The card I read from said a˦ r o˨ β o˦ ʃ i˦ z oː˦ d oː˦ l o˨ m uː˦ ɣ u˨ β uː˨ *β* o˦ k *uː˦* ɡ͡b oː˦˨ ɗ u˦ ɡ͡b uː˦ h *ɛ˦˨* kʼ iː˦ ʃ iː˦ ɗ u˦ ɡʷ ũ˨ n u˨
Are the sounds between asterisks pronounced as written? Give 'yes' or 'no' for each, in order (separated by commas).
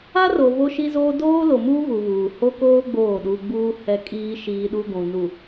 no, no, no